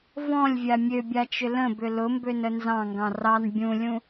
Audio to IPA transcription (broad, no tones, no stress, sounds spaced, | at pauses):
v ɔ̃ lʲ vʲ a mʲ ø bʲ a t͡ʃ ʏ l ə̃ b ʏ l ʊ m b ø n ə n z ɑ̃ ŋ ɡ ɑ̃ r ɑ n bʲ ũ lʲ ũ